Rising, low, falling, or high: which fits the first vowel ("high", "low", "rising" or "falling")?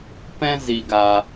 high